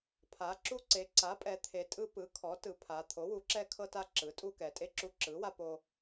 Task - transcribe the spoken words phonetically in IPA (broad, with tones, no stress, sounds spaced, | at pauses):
pʰ a˩˧ ǁ u˧ ǀ e˩˧ ǀ a˩˥ pʼ ɛ˩˧ t̪ʰ e˩˧ tʼ ɯ˧ p ɯ˩˥ kʰ ɔ˩˥ t ɯ˩˧ pʰ a˩˧ t̪ʰ o˩˥ w u˩˥ ǁ ɛ˧ kʰ ɤ˧ t a˧ ǁ ɯ˩˥ tʼ u˧ k ɛ˩˧ tʼ e˧ ǁ u˧ ǁ ɯ˩˥ w a˧ p o˧